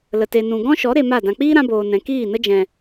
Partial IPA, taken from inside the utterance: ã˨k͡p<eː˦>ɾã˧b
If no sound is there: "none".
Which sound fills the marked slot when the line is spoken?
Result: iː˦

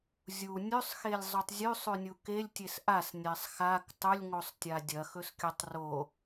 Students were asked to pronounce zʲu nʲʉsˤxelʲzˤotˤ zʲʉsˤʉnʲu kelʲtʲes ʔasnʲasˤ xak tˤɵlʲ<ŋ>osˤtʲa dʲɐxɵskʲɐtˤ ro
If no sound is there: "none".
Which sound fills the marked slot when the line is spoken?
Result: ŋ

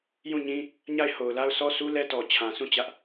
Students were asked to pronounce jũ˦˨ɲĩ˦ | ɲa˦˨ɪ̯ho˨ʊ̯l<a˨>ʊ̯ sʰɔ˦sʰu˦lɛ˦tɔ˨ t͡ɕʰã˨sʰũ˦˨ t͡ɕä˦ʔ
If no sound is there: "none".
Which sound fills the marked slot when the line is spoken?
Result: a˦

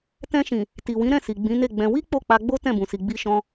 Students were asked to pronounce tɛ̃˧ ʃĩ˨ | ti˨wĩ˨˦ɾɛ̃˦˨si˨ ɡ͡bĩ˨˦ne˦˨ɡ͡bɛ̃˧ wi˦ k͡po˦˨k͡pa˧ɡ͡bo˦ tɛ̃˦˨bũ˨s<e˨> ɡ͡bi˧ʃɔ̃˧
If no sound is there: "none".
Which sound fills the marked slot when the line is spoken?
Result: i˨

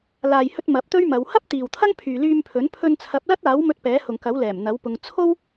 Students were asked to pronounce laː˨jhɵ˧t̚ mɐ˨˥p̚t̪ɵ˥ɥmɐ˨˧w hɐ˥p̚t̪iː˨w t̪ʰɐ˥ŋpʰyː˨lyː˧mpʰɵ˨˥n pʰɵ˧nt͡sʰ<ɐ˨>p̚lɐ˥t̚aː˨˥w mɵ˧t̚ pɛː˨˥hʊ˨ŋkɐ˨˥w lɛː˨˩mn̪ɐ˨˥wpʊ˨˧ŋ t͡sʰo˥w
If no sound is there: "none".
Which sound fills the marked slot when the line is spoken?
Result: ɐ˨˥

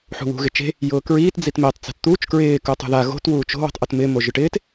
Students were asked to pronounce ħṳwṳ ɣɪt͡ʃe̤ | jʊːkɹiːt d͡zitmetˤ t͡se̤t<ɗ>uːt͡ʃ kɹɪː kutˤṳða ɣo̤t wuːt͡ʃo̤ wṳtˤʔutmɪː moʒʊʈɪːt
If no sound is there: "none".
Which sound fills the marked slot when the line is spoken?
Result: t̪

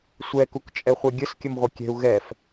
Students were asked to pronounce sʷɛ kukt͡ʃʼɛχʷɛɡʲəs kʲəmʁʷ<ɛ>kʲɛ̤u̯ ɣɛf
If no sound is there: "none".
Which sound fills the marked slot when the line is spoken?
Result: ɛ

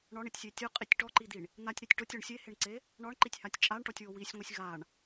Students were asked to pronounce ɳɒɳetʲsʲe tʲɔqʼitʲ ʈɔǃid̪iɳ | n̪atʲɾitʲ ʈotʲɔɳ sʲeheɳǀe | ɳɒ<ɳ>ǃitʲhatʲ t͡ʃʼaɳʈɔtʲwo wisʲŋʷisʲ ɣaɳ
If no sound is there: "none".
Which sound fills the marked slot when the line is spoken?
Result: ɳ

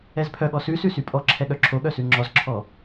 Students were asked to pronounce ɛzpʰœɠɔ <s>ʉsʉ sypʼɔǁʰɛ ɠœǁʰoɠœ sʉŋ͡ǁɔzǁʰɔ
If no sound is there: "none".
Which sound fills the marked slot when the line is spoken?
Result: s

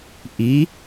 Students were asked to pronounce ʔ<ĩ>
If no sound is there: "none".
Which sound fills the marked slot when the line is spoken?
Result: i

